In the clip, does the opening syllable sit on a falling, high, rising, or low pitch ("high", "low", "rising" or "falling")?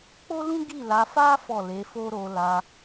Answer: high